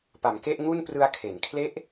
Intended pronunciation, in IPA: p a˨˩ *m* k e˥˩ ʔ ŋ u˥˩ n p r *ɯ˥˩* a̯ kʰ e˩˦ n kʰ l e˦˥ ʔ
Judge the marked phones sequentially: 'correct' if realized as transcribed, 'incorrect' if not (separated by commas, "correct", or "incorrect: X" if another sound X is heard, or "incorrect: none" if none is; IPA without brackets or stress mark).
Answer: correct, incorrect: ɯ˧